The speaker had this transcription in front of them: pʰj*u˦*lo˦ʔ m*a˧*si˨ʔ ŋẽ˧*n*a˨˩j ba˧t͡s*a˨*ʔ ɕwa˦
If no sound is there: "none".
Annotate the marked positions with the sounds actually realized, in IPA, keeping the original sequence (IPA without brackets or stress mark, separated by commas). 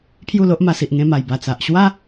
u˥˧, a˧, m, a˨